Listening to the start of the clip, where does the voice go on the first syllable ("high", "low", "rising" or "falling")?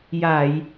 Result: low